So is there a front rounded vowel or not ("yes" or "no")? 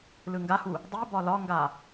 no